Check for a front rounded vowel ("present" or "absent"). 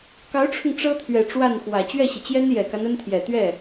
absent